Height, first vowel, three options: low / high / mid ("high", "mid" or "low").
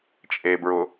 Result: mid